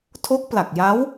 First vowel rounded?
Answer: yes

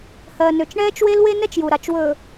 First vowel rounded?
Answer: no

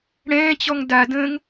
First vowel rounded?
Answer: no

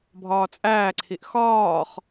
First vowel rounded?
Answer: yes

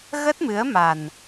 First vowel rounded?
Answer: no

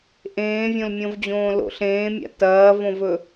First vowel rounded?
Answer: no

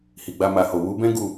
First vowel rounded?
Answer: no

